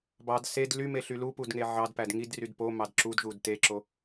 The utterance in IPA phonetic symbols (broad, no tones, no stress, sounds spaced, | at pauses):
b ɑ d s e d l y m e ɬ y l u p u d ŋ e ʕ ɑ d p æ d ŋ i d r y d p o m ɑ d ǁ u d ʒ u d t e ǁ o